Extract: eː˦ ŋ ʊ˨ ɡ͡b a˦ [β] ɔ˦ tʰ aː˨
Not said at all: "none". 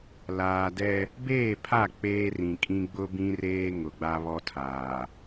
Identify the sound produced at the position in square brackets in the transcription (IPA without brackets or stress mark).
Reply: β